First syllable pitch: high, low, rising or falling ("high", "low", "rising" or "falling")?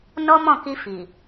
high